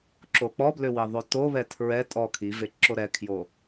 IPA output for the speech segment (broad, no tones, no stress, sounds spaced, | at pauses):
ǁ o k͡p ɔ b l ʏ w i ðˤ o t o β ɛ tʰ ɹ ɛ tʼ ɔ kʰ i v e ǁ o ɾ ɛ kʰ j o